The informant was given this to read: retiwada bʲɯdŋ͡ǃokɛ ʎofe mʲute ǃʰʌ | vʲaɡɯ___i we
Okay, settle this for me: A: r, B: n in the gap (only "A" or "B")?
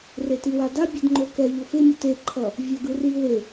A